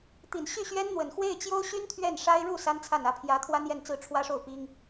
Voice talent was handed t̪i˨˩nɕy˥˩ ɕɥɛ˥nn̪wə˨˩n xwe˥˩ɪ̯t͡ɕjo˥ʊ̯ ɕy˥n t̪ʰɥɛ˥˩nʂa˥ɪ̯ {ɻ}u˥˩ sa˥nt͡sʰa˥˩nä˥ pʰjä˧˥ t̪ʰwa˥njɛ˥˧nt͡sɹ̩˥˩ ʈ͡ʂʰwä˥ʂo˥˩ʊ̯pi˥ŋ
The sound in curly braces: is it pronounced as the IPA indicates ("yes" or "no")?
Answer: yes